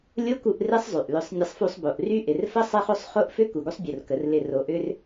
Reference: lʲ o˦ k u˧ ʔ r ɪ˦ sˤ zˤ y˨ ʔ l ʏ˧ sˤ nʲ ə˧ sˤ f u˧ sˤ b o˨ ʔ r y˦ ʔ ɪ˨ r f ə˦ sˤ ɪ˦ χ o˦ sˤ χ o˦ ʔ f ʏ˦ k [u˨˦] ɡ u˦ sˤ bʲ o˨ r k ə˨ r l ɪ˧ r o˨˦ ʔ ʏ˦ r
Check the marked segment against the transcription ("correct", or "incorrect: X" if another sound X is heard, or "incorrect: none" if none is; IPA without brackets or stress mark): incorrect: u˨